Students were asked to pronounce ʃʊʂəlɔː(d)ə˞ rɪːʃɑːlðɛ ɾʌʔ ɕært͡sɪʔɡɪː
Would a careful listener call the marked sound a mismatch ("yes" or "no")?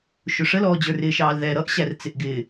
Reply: yes